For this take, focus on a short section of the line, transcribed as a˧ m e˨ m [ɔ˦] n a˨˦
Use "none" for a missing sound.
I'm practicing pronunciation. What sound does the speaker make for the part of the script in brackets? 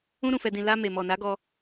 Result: ɔ˨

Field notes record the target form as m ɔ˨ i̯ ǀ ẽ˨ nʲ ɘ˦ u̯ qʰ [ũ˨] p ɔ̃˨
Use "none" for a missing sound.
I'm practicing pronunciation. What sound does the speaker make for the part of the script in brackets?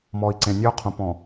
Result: ũ˨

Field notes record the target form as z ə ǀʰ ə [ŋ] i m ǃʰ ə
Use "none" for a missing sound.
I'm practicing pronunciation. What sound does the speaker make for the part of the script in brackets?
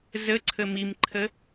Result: m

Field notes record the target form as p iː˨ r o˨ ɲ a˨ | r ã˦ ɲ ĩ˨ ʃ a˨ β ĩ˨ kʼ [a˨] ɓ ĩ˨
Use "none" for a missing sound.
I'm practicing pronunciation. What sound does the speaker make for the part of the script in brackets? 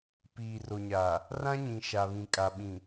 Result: a˨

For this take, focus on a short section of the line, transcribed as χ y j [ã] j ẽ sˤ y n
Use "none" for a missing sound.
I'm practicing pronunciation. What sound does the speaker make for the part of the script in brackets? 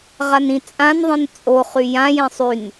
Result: ã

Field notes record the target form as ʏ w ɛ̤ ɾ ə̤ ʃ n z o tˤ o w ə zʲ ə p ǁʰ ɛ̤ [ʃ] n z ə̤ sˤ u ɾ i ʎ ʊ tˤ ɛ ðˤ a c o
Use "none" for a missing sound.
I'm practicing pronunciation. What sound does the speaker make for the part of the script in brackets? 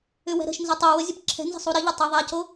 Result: none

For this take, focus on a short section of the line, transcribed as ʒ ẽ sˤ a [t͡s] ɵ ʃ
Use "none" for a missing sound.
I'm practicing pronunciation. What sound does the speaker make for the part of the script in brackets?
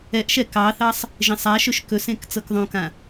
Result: ʃ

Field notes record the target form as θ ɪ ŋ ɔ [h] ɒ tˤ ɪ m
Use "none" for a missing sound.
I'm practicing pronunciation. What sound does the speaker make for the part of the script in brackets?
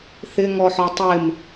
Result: ħ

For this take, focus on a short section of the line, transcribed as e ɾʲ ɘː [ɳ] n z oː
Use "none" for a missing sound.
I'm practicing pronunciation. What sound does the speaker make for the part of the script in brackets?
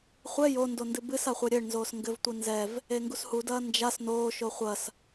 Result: ɳ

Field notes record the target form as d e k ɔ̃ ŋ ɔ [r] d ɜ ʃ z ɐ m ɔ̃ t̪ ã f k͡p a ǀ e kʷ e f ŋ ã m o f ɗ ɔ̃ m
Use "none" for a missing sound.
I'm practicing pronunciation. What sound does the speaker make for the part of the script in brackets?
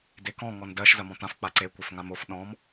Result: n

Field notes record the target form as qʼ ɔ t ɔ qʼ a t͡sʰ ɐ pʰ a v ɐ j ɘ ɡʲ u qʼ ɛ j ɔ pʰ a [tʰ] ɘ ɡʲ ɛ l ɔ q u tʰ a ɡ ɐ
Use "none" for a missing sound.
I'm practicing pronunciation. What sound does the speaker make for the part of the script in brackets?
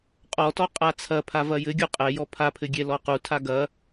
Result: pʰ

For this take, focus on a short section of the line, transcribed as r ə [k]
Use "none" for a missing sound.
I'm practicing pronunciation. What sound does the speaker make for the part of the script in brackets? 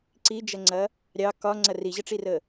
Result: none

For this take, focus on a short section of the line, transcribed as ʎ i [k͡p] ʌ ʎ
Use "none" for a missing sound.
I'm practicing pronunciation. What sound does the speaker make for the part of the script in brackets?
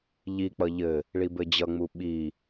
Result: k͡p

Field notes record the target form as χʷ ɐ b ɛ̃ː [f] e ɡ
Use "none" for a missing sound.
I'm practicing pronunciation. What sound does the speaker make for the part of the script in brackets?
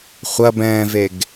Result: v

